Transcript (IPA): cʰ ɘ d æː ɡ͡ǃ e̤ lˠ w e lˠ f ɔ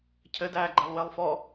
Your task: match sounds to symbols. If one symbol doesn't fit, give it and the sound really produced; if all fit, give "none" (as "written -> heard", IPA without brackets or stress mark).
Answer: none